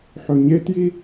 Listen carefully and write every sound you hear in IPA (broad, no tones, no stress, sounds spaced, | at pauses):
ħ ɵ ɲ e t j i